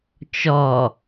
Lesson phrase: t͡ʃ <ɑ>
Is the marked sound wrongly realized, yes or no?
yes